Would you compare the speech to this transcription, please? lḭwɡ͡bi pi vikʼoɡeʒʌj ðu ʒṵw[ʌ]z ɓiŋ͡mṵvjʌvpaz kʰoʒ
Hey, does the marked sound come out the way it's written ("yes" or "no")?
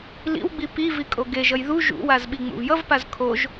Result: no